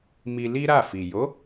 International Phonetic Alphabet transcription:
m i˧ l i˦ ɾ a˦˨ f i˨ j o˨˦

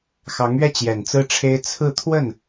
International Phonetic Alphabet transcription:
x ɑ˧˥ ŋ ɥ ɛ˥˩ t͡ɕ j ɛ˨˩ n t͡s ɹ̩˥ ʈ͡ʂʰ e˥ ɪ̯ t͡sʰ ɹ̩˥˧ t̪ʰ w ə˥˩ n

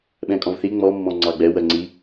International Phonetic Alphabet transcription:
ɓ ɛ̃ kʼ ɔ̃ v θ i ŋ͡m ɔ mː ɔ̃ ŋ͡ǀ ɑ ɡ͡b ɛ w ɜ ŋ͡ǀ i

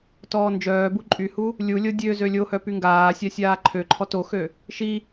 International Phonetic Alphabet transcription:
t ɔː n d͡ʒ œː b u ǃʼ y h u | lʲ u lʲ o dʲ ø z ø lʲ o h œ p y ŋ ɡ aː sʲ a sʲ aː ǃʰ ø ǃʰ ɔ t o x ø | ʃ i

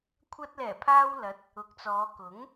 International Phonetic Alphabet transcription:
kʷʰ ɐ˧ t̚ l ɛː˨˩ pʰ aː˧ w l ɐ˨˥ t̚ | ʊ˨˥ k̚ t͡s ɔː˨˧ k ʊ˨˥ ŋ

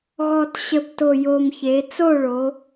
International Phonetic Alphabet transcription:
ɣ ɔ˨˩ t ɕ ə˨˩ b t o˨˩ j o˨˩ m ç e˩˧ t͡s o˥˨ ɭ o˩˧

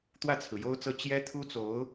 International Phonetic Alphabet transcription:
t̪ w ä˥˩ t͡sʰ ɹ̩˩ j o˥ ʊ̯ t͡s ɤ˥˩ t͡ɕ j ɛ˥ t̪ʰ u˥ t͡s o˧˥ ʊ̯

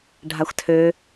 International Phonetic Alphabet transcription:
ɖʱ a xʷ tʰ ø

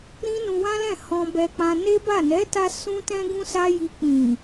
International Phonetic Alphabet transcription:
ɾ ĩ˦ n ũ˧ w ã˦ l ɛ̃˦˨ h ɔ̃˧ b ɛ˧ k͡p ã˧ n e˦ b a˦˨ n ɛ˨˦ t a˧ s ũ˦ t ɛ̃˦ ɡ ũ˦ s a˦ j i˧ k͡p ĩ˨

